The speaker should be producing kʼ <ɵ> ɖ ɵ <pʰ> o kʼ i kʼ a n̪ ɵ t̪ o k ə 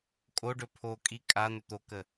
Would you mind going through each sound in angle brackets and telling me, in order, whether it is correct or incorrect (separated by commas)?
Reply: incorrect, correct